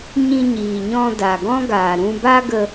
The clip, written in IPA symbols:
ɲ ĩ˧ ɲ iː˨ ɲ ɔ̃˧ d a˨ ɡ ɔ̃˦ ɡ aː˨ ɾ ũ˧ b a˦ ɡ ə˧

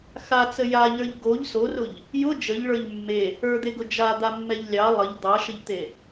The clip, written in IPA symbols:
x a t͡s ə j a ʎ ə˞ ʎ ɡ o ʎ s o r ʊ ʎ | j ʊ d͡ʒ ə ʎ ɭ ə˞ ʎ mː e | ə˞ d̪ e ɡ ʊ d͡ʒ a d̪ a mː ɛ ʎ lʲ ɑ lˠ ə ʎ d̪ ɑ ʃ ə ʎ t̪ e

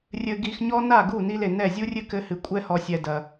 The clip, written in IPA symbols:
rʲ ɘ˧ ɡ i˧ x ɲ ɔ˦ n a˦˨ ɡ u˦˨ n i˧ l e˨ n ɛ˦˨ zʲ u˦ rʲ ɨ˦ k ɘ˦ h ɨ˧ kʷʼ ɛ˦ h ɔ˧ sʲ ɛ˧ d ɐ˧

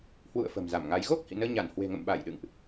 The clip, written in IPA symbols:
h w ṵ˧˨ ə̯ f ə̤˨˩ m z a˧˩ m ŋ a˨˦ j ɣ o˦˥ k̚ h ḭ˧˨ n əː˧ ɲ a˧˩ n h w e̤˨˩ ŋ ə̰˧˨ m ɓ a˧˩ j ɗ ɨ̰˧˨ ŋ ʔ

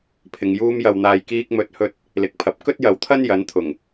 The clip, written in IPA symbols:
pʰ ɪ˨ ŋ j uː˥ m j ɐ˧ w n̪ aː˧ j k iː˥ k̚ m ɵ˧ t̚ h ɵ˥ t̚ | l ɪ˨˥ k̚ pʰ ɐ˨˥ p̚ k ɵ˥ t̚ j ɐ˨ w t̪ʰ ɐ˥ n j ɐ˨˥ n t̪ʰ ʊ˨˩ ŋ

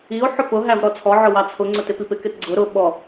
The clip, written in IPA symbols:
i o̯ ħ ʊ p ʊ ɦ æ v ɾ ɔ t͡sʰ ɔ ʕ ʊ w ɑ t͡sʰ ʊ ŋ͡ǀ ʊ t ɪ p i p ɪ k ɪ t ɡ͡ǀ ʊ ɾ ʊ ɓ ɔ

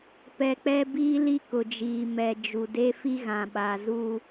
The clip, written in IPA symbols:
p ɛ˨ k͡p ɛ˦ b iː˦ l i˦ k ʊ˨ d͡ʒ iː˨ m ɛ˨ d͡ʒ u˨ d e˦ f i˦ ɣ ã˨ ɓ a˨ z u˦

